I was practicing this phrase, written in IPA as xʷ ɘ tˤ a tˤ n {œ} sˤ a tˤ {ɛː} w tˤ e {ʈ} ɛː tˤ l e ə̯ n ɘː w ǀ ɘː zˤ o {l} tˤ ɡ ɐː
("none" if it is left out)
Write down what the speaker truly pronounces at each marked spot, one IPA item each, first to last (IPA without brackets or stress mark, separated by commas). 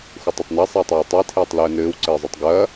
ɛ, ɘː, tʰ, none